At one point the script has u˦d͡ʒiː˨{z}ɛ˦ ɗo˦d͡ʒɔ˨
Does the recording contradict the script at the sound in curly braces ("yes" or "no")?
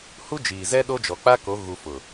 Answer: no